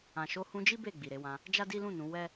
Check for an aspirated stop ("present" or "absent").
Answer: absent